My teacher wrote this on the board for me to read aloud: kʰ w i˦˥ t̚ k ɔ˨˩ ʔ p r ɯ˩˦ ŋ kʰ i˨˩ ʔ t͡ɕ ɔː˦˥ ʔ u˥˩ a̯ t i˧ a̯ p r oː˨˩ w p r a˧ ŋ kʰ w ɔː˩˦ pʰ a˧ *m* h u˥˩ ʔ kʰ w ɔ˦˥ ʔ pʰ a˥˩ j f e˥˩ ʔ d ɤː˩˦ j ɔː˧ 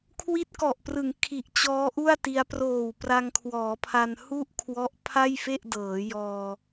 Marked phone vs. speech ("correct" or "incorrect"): incorrect